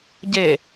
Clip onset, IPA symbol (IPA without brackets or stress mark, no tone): ɟ